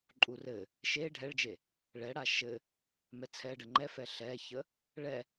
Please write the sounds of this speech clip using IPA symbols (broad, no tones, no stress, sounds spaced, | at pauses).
ǃʼ u r ɘ | ʃ e ɖʱ ɛ ɭ d͡ʒ e | ɭ ɛ ɽ a ʃ ɘ | m ɛ t͡sʰ ɛ ɖ ə ŋ͡ǃ ɛ f ɛ ɬ ɛ ç ə | ɭ ɛ